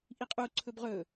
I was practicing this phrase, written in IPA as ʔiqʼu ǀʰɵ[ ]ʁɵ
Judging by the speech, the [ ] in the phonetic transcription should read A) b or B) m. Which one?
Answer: A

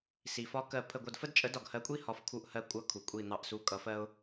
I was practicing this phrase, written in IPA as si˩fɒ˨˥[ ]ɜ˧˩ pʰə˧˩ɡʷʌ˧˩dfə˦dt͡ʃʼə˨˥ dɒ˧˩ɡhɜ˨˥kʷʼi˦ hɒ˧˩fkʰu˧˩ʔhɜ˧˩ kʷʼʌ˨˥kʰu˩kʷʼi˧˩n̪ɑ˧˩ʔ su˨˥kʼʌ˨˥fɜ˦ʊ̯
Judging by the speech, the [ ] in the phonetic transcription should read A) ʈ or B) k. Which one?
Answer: B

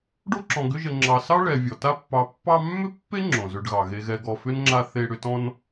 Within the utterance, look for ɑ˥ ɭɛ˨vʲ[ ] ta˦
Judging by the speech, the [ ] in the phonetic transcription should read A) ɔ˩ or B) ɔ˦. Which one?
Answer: A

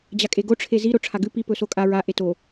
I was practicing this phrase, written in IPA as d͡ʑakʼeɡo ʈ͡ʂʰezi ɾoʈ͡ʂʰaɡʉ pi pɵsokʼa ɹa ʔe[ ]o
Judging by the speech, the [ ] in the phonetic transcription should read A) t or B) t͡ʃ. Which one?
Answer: A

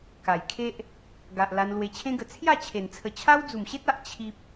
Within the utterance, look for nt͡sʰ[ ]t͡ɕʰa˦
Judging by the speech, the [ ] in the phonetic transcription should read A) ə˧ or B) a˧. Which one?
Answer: A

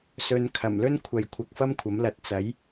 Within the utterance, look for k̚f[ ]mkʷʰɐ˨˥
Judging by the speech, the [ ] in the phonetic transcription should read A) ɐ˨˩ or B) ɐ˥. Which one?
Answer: B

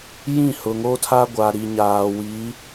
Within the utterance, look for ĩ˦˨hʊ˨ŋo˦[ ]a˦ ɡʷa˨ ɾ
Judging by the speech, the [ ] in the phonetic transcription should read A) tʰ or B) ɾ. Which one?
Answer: A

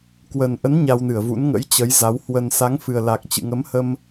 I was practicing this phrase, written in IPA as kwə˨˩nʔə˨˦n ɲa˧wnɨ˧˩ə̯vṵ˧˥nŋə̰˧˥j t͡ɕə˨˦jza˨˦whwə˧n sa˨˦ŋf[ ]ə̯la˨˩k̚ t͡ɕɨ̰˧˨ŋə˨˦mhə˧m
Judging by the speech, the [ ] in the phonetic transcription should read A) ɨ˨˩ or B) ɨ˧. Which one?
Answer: A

